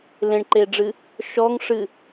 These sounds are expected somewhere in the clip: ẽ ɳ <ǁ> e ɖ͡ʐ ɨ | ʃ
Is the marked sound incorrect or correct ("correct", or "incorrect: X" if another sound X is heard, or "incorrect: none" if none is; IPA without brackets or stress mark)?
incorrect: ǃ